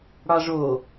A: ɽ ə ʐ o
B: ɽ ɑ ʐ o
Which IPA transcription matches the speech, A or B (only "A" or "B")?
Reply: B